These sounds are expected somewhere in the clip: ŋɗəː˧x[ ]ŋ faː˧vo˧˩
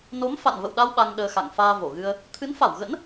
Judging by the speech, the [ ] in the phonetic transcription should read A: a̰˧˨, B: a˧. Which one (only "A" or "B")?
A